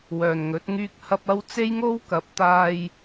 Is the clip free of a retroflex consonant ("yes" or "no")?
yes